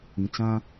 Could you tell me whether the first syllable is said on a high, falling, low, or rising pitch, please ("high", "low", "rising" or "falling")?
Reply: low